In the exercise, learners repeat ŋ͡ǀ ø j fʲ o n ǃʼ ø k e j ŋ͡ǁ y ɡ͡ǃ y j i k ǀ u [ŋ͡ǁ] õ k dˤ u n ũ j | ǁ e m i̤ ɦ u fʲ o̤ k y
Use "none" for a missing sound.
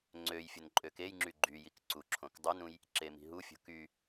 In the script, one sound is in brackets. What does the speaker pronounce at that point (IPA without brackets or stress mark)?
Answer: ǁʰ